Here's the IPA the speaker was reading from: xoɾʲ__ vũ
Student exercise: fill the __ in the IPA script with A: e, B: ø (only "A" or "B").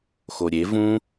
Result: A